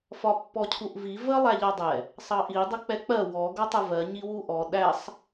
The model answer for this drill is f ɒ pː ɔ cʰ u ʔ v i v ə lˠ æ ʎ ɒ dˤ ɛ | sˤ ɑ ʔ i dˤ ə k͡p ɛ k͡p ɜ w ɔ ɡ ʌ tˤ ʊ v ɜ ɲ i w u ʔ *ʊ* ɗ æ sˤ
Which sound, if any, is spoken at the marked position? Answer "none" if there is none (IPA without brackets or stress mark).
ɔ